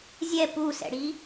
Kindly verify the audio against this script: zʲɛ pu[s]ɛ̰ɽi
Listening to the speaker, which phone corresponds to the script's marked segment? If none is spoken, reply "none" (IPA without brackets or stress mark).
s